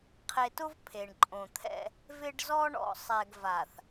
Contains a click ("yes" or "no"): yes